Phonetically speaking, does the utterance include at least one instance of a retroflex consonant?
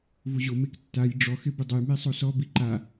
yes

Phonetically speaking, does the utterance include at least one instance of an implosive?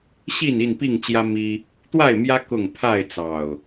no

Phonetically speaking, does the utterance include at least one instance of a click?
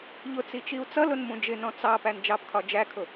no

